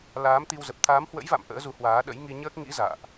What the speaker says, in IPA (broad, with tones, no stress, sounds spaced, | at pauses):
l aː˨˦ m t̪ i˧ w z ə˨˩ p̚ t̪ʰ aː˨˦ m h w ə̰˧˥ j v a̰˧˨ m ʔ ə̰ː˧˥ z u˨˦ h w aː˨˦ ɗ ə̰˧˥ j ŋ i˧ ɲ əː˦˥ k̚ ŋ ḭ˧˥ z a̰ː˧˨ ʔ